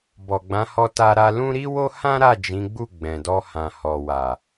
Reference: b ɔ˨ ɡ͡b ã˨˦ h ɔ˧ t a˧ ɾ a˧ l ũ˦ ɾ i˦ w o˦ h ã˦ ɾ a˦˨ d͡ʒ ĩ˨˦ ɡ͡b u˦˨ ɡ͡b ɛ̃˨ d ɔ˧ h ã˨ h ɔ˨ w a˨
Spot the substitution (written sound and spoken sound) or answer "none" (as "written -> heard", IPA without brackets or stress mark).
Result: none